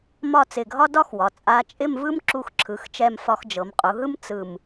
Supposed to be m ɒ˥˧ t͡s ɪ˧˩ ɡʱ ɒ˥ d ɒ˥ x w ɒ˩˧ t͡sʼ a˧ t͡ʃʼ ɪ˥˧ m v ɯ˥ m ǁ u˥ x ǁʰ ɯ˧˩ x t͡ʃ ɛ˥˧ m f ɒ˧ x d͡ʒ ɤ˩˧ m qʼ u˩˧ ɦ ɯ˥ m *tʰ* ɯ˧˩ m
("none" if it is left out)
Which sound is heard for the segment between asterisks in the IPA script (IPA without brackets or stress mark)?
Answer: t͡s